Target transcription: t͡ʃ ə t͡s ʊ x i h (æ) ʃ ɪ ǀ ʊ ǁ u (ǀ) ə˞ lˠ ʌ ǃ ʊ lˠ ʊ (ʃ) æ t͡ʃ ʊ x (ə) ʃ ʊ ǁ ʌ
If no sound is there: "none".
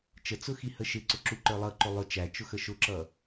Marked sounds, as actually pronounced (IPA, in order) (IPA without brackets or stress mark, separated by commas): ə, ǃ, t͡ʃ, ə